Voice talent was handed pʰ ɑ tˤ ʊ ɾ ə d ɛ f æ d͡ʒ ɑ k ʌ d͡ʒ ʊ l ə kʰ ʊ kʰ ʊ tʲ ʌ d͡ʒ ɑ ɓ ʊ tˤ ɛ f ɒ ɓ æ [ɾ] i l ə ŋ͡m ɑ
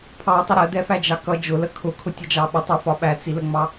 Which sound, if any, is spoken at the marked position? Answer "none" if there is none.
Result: t͡s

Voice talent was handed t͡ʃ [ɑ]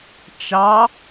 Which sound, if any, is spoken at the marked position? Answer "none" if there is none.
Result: ɑ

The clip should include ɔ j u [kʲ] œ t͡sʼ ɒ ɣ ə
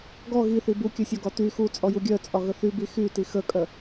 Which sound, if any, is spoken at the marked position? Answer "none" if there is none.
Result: ɡʲ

